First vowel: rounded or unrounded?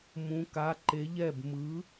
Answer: rounded